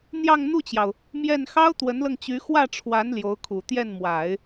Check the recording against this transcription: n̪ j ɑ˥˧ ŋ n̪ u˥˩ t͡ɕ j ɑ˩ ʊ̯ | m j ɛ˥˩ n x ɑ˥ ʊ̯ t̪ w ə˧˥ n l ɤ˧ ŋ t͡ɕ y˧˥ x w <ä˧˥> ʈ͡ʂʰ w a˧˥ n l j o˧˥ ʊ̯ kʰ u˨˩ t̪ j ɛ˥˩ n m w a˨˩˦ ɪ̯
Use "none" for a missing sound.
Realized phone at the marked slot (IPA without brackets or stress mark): ä˥˩